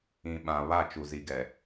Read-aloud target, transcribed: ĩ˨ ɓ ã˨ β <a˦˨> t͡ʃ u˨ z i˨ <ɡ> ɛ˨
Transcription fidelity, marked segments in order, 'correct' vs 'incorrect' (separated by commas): correct, correct